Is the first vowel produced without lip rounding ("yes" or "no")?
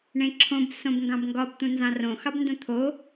yes